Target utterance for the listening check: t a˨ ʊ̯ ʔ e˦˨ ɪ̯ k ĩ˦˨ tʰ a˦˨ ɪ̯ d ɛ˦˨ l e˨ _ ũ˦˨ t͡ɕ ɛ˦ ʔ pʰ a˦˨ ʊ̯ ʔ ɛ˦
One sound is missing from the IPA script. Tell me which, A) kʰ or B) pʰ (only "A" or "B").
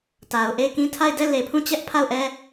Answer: B